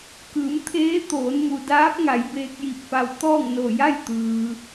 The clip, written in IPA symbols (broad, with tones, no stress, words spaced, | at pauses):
kɯː˩˧m t̪ʰeː˧˥ t̪oː˩˧nmu˩daː˧˥p̚ŋa˩˧j beː˧k̚ji˧p̚fa˧w t̪ɔː˥˨ŋno˧˩ ja˥˨jt̪ɯː˩